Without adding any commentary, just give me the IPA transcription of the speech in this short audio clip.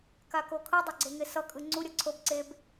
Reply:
k a k o kʰ ɯ dˤ o ɡ͡ǀ e ŋ e s ʌ kʼ ɯ ŋ͡ǀ u ɾʲ ʌ ǀʰ o b ǀ e b

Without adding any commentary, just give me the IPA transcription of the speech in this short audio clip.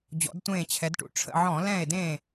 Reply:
d͡ʑ ɔ̰˩˧ d tʷ ẽː˧˩ t͡ɕʰ ɛ˩˧ d ʈ ṵ˧˩ ʈ͡ʂʰ ə̰˧˩ ʕ ɔ̃˧˩˧ l ɛ̃˧˩ e̯ d ẽ˧˩

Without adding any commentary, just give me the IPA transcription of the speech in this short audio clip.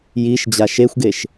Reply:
j i ʃ d͡ʑ a ʃ e xʷ ɡ e ʃ

